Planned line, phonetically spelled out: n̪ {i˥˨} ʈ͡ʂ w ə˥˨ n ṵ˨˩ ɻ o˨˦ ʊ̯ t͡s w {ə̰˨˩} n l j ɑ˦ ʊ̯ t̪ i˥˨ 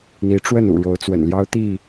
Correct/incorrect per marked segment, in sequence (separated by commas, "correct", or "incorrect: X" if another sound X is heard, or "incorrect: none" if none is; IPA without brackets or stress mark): incorrect: i˨˦, correct